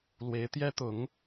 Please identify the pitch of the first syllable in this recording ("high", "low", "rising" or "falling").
rising